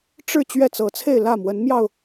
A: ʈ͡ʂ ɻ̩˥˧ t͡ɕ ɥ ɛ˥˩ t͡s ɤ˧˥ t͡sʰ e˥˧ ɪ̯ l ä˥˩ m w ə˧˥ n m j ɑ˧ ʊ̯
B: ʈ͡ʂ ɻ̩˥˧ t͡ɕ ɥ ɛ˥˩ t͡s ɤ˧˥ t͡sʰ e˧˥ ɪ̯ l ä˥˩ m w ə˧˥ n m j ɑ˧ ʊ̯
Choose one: A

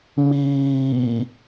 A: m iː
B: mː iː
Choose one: A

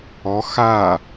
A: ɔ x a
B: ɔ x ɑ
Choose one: A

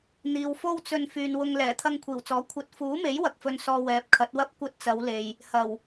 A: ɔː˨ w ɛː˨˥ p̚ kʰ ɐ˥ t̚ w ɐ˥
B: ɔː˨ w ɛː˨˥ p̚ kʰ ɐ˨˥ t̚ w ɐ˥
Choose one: B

